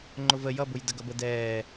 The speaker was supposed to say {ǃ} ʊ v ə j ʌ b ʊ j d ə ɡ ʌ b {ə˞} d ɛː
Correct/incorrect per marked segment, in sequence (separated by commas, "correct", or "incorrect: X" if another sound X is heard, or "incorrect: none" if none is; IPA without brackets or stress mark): incorrect: ŋ͡ǃ, incorrect: ə